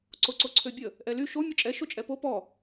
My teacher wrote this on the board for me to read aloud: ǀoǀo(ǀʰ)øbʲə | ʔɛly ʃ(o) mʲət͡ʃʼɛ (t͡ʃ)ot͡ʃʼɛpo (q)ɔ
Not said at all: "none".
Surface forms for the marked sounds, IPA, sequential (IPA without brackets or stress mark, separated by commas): ǀʰ, o, ʃ, p